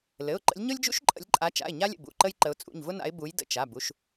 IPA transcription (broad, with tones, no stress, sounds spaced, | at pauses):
l ɘ˩˧˩ ʊ̯ ǃ ə̰˨˦ lʲ ɲ ʊ˥ lʲ d͡ʒ ṵ˥ ʃ ǃʼ ə̰˨˦ lʲ ǃʼ a˨˦ t͡ʃ a̰˩˧˩ ɪ̯ ɲ a˥ lʲ ə̰˩˧˩ b ṵ˩˧˩ ǃ ə˥ j ǃ ə˨˦ ʊ̯ t͡sʼ ṵ˩˧˩ ɲ v ʊ˥ n a̰˨˦ ɪ̯ b u˨˦ j d ə̰˩˧˩ t͡ʃ a˩˧˩ b u˩˧˩ ʃ